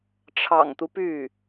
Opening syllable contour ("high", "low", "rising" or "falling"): low